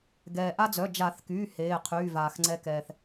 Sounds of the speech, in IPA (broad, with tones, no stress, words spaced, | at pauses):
ɡɛː˩ʔa˦d͡zœ˩˧˩ d͡ʒa˨˩˦θkyː˩˧˩ heː˩˧˩qʰyː˩˧˩vaː˩x ŋ͡ǀɛ˨˦kɛː˩θ